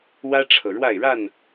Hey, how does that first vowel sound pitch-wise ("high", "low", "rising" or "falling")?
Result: high